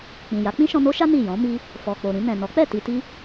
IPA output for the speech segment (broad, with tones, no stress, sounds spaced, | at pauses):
k͡p ĩ˨ j a˨˦ k͡p ĩ˦ ʃ ɔ̃˧ n o˦ ʃ a˦ n i˦˨ j ɔ̃˨˦ m i˧ | f ɔ˨ k͡p o˨ ɾ ĩ˧ n ɛ̃˨ n ɔ˨˦ k͡p ɛ˦˨ t i˧ t i˦